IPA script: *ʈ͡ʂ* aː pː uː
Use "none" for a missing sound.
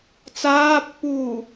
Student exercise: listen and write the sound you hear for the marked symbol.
t͡s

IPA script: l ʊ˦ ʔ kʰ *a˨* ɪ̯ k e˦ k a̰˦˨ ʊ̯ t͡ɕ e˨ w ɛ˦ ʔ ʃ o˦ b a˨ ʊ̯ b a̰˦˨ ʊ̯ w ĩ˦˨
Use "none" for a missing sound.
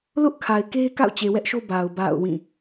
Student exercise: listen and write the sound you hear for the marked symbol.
a˨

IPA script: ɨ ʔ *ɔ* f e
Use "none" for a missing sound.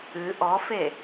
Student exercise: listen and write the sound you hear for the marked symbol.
ɔ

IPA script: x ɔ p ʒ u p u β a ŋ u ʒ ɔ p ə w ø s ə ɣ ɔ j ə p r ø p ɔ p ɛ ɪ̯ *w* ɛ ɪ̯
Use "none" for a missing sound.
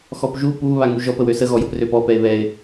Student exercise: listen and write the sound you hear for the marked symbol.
β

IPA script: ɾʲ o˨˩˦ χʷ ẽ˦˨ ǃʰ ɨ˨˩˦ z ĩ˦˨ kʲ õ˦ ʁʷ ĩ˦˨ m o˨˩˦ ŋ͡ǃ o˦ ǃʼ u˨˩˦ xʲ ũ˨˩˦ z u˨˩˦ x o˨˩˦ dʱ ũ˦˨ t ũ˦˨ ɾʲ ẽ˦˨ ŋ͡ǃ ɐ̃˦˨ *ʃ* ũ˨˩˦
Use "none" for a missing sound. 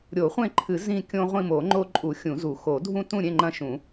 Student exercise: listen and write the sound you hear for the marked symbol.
ʃ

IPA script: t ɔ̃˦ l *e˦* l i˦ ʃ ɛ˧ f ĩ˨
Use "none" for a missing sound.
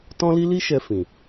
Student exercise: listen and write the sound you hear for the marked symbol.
i˦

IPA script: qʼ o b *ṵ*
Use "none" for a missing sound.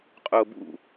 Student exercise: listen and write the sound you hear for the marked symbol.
ṵ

